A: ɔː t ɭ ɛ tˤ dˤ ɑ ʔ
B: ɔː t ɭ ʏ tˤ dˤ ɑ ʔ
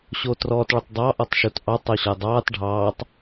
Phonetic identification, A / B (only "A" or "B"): B